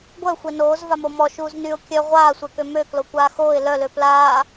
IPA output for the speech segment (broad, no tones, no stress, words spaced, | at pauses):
ɡʷœ xʷenoːz vamomɔ ʃuːznyʊ̯ kʲœ ʁʷaːsʷɛkø møklo kʷaːxoːɪ̯ lœlø plaː